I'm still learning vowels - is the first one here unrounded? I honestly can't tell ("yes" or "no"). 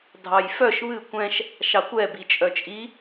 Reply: yes